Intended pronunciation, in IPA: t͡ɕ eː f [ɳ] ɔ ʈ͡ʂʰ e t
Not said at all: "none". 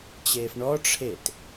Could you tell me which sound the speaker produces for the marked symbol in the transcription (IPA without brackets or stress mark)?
ɳ